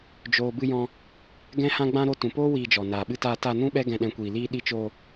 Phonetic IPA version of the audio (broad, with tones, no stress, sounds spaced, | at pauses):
d͡ʒ oː˨ b ɨ˧ j ɔ̃˧ | ɡ ɛ̃˦ h ã˦ ɡ͡b ã˦ ɾ o˧ t ũ˨ p oː˦ w iː˧ d͡ʒ ɔ˨ n aː˨ ɓ ɨ˧ t aː˧ t a˧ n ũ˦ ɓ ɛ˦ ɡ ɛ̃˦ ɗ ɛ̃˦ kʷ iː˧ l iː˦ ɗ i˧ t͡ʃ oː˧